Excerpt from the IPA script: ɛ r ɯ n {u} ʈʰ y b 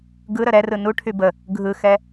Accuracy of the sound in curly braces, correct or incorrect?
correct